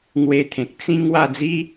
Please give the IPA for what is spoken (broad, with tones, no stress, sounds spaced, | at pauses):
ŋ w e˧ t̪ʰ ẽ˨ k̚ t͡s ĩ˦ ŋ w a˥˧ d͡z i˦